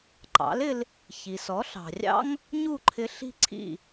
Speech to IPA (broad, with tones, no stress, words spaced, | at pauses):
ǃɑ̰˩˥lɪ˧l | çi˩sɔ˩˥ɬɑ̤˩rʲɑ̰˥ŋ | ɲu˥˩ǃʰɪ˧ ɬi̤˥ǀʰḭ˥˩